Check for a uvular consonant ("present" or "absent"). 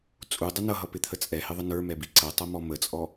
absent